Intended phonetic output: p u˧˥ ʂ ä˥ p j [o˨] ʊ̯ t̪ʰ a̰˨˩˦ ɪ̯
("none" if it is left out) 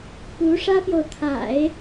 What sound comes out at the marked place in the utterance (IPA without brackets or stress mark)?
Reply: o˨